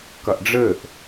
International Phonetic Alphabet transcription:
k ɐ ʔ ɖ͡ʐ ɘ ʔ

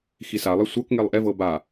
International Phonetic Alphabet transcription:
x i s a lˠ e sʷ ɤ k ŋ e lˠ ʔ ɛ v ɤ b a

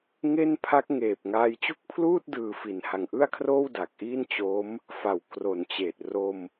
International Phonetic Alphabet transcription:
ŋ e˥˩ n pʰ a˦˥ k̚ ŋ eː˨˩ p̚ ŋ aː˧ j t͡ɕ u˥˩ k̚ pʰ l uː˥˩ t̚ d ɯː˨˩ f i˨˩ n h a˨˩ ŋ ʔ ɯ˥˩ a̯ kʰ r oː˥˩ w d aː˨˩ k̚ ʔ iː˥˩ n t͡ɕ o˦˥ m | f a˩˦ w k r o˨˩ n t͡ɕ eː˨˩ t̚ r o˧ m

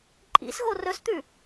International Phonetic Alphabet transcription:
ǃʼ ḭ s ɣ o r ɵ s t̪ ʉ

